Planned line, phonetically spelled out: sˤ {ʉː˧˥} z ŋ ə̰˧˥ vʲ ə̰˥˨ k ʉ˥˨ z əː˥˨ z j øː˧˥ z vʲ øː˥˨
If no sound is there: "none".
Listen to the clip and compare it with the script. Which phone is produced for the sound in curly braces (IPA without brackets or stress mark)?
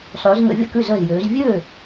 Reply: ʉː˧˥